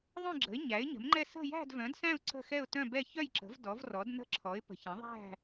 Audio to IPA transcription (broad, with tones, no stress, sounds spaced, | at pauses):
ðˤ œ̃˥˧ ɡ͡ǁ ə̤˨˥ ɪ̯ ɲ æ˨˥ ɪ̯ ɲ ə̤˨˥ m ŋ͡ǃ ɛ˥˧ s ə̤˥˧ j æ̤˥˧ d v œ̃˨˥ d s æ̃˥˧ ʊ̯ ǀ ə̤˥˧ x ɛ˥˧ ʊ̯ t œ̃˥˧ b ɛ˥˧ ç œ˥˧ j ǁ ə̤˨˥ v d ɔ˨˥ v r ɔ˨˥ d n ə̤˥˧ ǁʰ ɔ˨˥ ɪ̯ p ə̤˨˥ ç ə̃˨˥ ðˤ æ̤˥˧